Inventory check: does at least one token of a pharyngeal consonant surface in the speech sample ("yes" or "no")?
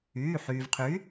yes